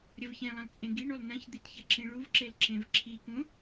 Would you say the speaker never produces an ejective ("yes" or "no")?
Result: no